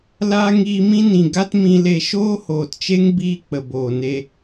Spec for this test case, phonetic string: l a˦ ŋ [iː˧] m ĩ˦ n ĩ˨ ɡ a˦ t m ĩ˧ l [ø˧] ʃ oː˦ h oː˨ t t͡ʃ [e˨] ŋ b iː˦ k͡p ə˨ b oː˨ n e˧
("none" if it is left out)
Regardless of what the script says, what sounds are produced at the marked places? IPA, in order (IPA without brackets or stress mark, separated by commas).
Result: iː˧, e˧, e˦